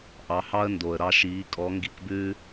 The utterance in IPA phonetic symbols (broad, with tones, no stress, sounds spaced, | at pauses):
ʔ ɑ˨˦ h ɑ˦ ə̯ n d o˨ ə̯ ɾ ɑ˧ ʃ iː˨˦ kʼ ɔ˨˦ ŋ ɡ i˧ k b ʉː˦